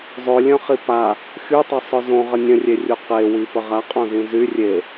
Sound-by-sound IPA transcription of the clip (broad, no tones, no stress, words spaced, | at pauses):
zˤølʲœ̃χi pa | xytˤɛsˤœ zõʁə nʲə̃rʲerʲu qewipə ʁaqʼõzĩ zy rʲe